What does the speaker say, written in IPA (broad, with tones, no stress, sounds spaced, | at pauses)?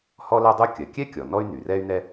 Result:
h ɔ˥ l ɜ˥ dˤ u˥ kʲ ɜ˩ kʲ ɛ˥ kʲ ɔ˩ n ɔ˥ y̯ n y˩ r ɛ˥ y̯ n̪ ɛ˥